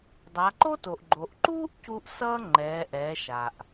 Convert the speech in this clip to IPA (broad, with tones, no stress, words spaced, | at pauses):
dˤa˩˧ǃo˥to˩ʔɡ͡ǃo˩ʔ ǃuː˥ʔcu˧ʔ sʌː˥ ŋ͡ǃɛː˩˧ʔɛː˩˧ ʃa˩ʔ